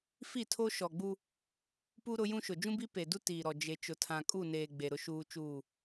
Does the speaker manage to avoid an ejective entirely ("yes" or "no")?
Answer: no